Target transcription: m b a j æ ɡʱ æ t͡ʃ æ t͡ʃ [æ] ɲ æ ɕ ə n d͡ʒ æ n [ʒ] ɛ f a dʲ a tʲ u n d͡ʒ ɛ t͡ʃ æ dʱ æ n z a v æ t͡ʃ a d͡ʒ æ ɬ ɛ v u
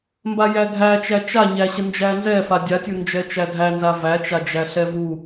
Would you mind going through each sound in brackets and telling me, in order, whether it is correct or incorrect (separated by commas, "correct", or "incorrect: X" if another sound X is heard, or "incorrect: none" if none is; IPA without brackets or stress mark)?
incorrect: a, incorrect: z